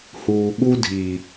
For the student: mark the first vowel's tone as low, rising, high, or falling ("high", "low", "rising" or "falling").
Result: low